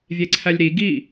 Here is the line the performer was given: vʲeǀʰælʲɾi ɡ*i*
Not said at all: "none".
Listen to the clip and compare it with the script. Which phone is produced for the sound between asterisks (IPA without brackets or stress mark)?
i